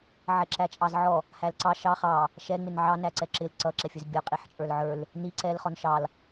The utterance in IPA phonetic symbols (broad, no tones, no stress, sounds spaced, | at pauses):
ʕ ɛ ǁ æ t͡ʃʼ ɑ z ʕ ɔ | h æ l ǀ ɑ ʃ ɑ χ ɑ | ʃ ɛ ŋ͡m ɪ n ʕ ɑ n æ ǀ ɛ ǁ ɪ l ǀ ʌ ǁ ɛ fʲ ə˞ z bʲ ɔ qʼ i ħ t͡ʃʼ ə˞ l ʕ ə˞ l | n i ǀ ɛ l χ ɔ n ʃ ɑ l